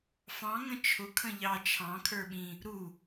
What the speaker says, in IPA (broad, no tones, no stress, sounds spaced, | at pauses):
f ɑ̃ ŋ ə̃ t͡ʃʰ ʊ kʰ ə̃ ʎ ɑ t͡ʃʰ ɑ̃ kʰ ə˞ ɓ ĩ | ɾ u